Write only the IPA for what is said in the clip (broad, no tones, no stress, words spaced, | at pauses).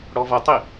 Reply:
ɽɔvʌtˤi